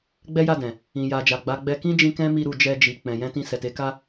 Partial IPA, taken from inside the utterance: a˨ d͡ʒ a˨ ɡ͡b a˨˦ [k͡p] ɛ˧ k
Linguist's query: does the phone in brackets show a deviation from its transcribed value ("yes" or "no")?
yes